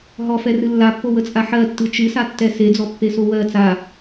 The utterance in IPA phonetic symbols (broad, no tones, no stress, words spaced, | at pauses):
ɦɔfɛrɨ lːapːowət͡sʼa ħɜtːɨ t͡ʃɨsatːɛ sed͡zɔpːeso wɜ t͡sa